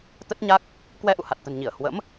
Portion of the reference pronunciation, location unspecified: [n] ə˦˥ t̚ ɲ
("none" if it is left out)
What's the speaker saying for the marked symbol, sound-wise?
t̪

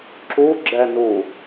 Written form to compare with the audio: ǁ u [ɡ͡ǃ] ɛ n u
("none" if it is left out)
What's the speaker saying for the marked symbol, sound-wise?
ɡ͡ǁ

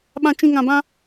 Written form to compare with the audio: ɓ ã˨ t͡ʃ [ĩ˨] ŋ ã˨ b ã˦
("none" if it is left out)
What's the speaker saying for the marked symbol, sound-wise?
ĩ˨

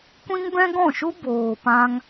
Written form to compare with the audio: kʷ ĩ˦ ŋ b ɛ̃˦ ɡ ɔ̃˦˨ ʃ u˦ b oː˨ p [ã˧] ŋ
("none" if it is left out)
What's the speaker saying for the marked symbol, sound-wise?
ã˧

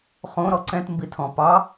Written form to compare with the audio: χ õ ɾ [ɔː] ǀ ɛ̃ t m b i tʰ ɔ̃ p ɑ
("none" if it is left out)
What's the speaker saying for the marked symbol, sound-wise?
ɔ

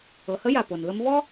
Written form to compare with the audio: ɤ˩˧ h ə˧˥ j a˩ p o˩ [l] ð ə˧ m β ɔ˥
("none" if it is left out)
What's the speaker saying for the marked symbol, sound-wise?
n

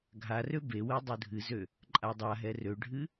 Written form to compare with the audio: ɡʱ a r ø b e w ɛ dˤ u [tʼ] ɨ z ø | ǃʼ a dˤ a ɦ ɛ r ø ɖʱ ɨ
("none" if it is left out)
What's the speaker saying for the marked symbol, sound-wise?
dʱ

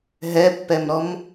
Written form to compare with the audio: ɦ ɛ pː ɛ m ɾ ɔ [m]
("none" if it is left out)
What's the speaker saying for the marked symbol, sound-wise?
m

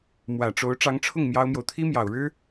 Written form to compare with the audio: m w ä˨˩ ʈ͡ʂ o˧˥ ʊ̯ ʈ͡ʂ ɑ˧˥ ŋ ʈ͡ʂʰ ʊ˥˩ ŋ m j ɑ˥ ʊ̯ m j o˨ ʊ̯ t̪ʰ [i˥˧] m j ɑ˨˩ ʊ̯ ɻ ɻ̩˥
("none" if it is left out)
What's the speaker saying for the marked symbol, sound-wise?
i˥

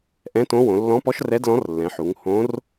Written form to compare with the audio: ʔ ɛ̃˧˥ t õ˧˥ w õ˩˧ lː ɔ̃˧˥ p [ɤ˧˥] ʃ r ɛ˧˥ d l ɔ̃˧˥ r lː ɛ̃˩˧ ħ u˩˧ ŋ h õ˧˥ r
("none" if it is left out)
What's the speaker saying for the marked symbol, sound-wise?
ɔ˧˥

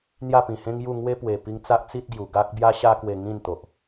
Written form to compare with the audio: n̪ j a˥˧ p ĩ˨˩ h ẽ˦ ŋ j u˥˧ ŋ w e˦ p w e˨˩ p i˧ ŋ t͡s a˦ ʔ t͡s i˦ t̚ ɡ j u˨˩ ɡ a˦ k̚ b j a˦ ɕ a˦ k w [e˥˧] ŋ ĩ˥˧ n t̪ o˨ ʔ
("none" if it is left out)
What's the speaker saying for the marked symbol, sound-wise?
e˧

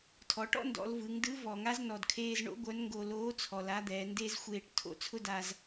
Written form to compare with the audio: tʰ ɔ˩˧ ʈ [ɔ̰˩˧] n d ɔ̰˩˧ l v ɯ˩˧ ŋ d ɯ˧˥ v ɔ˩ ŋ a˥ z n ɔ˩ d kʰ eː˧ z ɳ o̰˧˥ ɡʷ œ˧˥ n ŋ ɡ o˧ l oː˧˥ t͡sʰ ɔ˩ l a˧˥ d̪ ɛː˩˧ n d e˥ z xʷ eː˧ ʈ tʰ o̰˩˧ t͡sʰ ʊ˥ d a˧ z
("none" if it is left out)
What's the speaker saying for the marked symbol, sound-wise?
ɔ̰˥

